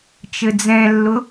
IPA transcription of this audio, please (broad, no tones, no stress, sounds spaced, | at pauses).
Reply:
t͡ʃ ɘ d͡z ɛ̃ lː ʊ